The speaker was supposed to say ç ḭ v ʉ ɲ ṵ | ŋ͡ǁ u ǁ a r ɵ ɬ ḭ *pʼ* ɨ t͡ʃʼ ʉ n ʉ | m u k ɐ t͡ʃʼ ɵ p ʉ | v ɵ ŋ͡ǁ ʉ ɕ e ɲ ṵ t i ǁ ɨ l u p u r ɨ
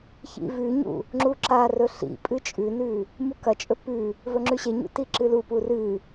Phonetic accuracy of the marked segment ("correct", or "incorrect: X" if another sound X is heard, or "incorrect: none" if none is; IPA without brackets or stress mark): correct